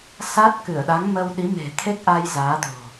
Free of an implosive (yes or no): no